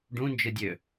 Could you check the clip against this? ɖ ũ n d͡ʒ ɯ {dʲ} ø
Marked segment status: correct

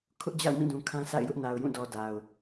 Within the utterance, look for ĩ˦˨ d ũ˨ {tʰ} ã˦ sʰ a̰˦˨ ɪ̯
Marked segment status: incorrect: kʰ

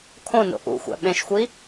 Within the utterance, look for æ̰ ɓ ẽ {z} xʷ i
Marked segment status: incorrect: ʃ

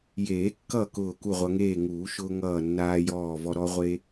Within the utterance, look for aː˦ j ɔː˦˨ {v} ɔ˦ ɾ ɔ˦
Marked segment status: correct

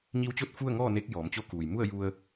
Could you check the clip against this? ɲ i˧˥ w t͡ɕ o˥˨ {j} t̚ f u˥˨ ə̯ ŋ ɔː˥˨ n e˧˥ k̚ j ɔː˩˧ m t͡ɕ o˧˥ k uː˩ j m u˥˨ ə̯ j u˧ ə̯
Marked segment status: incorrect: none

